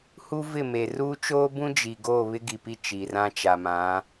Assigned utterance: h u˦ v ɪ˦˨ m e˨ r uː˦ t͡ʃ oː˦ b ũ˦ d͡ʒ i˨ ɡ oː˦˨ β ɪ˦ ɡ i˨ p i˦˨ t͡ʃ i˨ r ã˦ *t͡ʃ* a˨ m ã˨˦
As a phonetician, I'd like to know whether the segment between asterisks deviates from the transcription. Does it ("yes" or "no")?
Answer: no